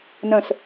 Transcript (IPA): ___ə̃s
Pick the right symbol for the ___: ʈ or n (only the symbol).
n